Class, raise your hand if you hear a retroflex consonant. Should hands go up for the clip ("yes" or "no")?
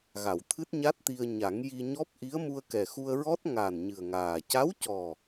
no